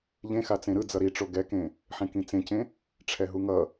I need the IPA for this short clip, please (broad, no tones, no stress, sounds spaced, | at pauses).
ʎ ẽ x a t͡s ẽ ɾ ɯ d͡z ʌ ɾ i ʈ͡ʂ o ɡ ɛ k ẽ | ħ ẽ k ĩ t͡s ẽ c ẽ | ʈ͡ʂʰ ɛ ɦ u ŋ ʌ